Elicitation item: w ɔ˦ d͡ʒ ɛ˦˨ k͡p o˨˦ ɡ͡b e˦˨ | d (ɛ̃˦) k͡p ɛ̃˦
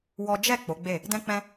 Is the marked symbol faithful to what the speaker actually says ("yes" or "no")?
yes